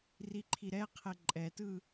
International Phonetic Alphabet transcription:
r i ǃʰ i ɾ ɛ qʰ ɛ ǃʼ ɛ t ɯ

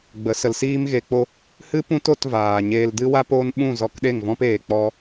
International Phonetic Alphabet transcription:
ɡ͡b ə˨˦ s ə˨ l s iː˦ m ɣ e˧ k͡p o˦ | h ɨ˦ p ũ˦ t o˧ t v aː˨ ɲ eː˧ l d ɨ˦ w a˦ p oː˦ n ɓ ũ˦˨ z ɔ˧ k ɗ e˦˨ ŋ v ɔ̃˦ p eː˨ k͡p ɔ˧

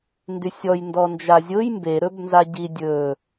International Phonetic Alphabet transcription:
n d y sʲ ɔ j n d ɔ n d͡ʒ a zʲ ʊ j m b e ɾ ɵ b n z a ɟ i dʲ ɵ

